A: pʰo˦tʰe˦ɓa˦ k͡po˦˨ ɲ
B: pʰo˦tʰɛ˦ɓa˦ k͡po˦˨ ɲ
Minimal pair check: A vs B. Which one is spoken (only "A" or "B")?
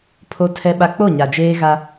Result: B